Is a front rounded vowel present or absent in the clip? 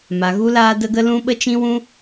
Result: absent